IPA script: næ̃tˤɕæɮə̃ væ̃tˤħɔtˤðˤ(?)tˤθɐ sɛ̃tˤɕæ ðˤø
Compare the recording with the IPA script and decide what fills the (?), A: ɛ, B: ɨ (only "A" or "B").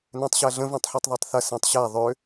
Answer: A